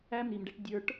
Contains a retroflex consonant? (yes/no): yes